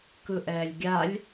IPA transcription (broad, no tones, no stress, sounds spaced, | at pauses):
k ɯ ʔ ɛː lʲ ɡʲ a lʲ